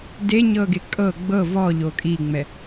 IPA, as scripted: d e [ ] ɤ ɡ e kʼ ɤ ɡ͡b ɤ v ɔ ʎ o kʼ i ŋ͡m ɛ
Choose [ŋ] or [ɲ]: ɲ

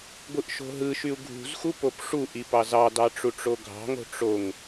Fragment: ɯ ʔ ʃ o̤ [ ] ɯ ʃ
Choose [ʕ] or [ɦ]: ɦ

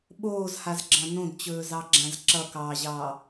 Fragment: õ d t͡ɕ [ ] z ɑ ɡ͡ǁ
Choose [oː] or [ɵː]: ɵː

